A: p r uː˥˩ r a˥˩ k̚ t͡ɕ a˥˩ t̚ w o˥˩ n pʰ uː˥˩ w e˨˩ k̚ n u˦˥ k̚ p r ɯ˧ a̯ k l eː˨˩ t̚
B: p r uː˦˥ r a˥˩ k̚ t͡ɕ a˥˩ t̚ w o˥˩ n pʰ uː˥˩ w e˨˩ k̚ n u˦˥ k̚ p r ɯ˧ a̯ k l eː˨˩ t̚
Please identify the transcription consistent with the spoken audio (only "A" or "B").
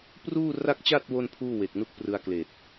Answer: A